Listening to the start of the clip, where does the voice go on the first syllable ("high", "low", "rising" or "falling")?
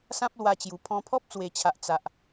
high